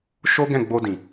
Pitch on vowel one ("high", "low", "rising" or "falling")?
high